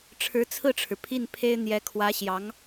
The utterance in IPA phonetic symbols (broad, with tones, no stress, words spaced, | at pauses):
ʈ͡ʂʰɻ̩˧˥t͡sʰɹ̩˥˩ʈ͡ʂʰɻ̩˩ pʰi˥˩npʰe˥ɪ̯n̪jɛ˧˥ kʰwä˧˥ɕjɑ˧˥ŋ